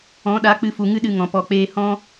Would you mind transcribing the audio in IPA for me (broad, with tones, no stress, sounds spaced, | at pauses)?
ɔ̃˨˦ ɗ a˨˦ k͡p ɨ˧ f u˨ ŋ ɨ˦ ɗ ɨ˧ ŋ ɔ̃˨ p ɔ˨ k͡p eː˧ h ɔ̃˦